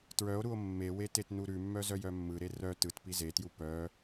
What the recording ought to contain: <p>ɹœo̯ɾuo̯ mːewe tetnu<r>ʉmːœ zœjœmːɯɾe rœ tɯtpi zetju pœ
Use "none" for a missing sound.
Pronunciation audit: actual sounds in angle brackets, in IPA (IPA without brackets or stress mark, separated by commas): t, ɾ